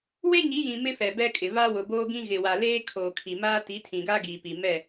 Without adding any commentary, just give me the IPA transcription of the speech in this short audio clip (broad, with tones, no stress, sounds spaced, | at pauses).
w e˦ ɲ i˨˦ j ĩ˨ m ɪ˦ f ɛ˨ b ɛ˦ kʼ ɪ˨ β a˦ w ʊ˨ b oː˦ ɡ ĩ˦ ɣ ɪ˨ w a˨ l eː˦ kʰ oː˨ kʰ i˨ m aː˦ t i˨˦ tʰ ĩ˨ ɡ a˦ ɡ iː˨ p i˨ m ɛ˦˨